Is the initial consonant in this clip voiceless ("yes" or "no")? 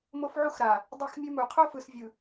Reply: no